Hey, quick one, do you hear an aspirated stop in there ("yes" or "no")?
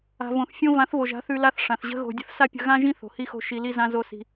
no